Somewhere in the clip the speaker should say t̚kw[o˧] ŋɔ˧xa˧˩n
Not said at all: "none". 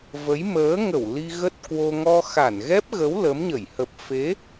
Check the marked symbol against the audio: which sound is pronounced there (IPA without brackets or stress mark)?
o˧